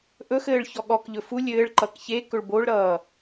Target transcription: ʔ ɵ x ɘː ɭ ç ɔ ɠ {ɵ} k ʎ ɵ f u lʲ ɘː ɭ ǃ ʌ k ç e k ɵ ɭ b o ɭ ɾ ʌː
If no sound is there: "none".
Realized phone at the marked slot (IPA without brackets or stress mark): ɔ